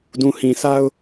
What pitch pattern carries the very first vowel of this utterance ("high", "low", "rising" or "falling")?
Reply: low